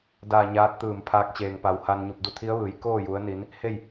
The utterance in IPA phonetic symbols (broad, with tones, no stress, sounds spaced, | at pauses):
d aː˧˩ ɲ aː˧˥ t̚ t̪ ɯː˧˩ m pʰ aː˧˥ k̚ t͡ɕ eː˩ ŋ p a˩˧ w h a˧ n ɲ u˧˩ p̚ d u˧ t̪ʰ i˧˥ ə̯ ʋ ɯː˩˧ j k oː˥˨ j u˩˧ ə̯ n i˩˧ n | h e˥˨ j